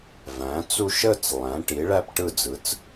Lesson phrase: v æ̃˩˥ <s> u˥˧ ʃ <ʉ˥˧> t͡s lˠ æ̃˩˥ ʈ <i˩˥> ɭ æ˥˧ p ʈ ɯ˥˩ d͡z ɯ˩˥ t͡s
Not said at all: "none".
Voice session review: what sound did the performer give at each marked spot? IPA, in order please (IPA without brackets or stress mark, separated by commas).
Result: t͡s, ə˥˧, i˩˥